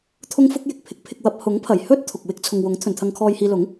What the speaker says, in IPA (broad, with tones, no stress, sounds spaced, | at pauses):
t̪ʰ ʊ˥ ŋ f ʊ˥ k̚ j ɪ˨ k̚ pʰ ɪ˨˥ k̚ pʰ ɪ˧ k̚ w ɐ˧ p̚ h ʊ˨˥ ŋ pʰ ɐ˨˩ j h ɵ˥ t̚ t̪ʰ ʊ˨ k̚ w ɪ˥ k̚ t͡sʰ ʊ˨ ŋ w ʊ˨˥ ŋ t̪ʰ ɵ˨ n t̪ʰ ɐ˧ ŋ kʰ ɔː˧ j h iː˧ l ʊ˨˥ ŋ